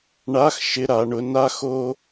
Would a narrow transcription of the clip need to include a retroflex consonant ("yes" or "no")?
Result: yes